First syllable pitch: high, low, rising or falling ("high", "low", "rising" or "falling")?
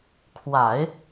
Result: low